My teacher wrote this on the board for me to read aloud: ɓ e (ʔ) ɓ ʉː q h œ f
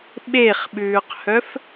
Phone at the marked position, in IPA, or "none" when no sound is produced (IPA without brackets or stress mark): χ